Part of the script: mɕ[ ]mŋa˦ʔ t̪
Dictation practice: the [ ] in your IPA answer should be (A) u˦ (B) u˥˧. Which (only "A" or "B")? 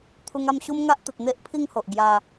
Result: A